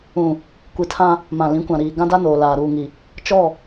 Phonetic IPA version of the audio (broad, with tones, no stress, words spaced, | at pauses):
ũ˨ | kʷi˨ tʰã˦ | mã˨lĩ˨˦kʷã˨ɾiː˨ ɡã˦da˦noː˨ laː˨ɾuː˨ŋi˨ | t͡ʃɔ˦˨